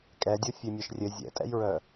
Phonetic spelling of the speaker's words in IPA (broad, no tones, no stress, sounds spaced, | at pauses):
kʼ ɛ dʲ o fʲ e mʲ œ ʃ rʲ ɘ zʲ ɛ̰ tʼ ɛ̰ j ɹ œ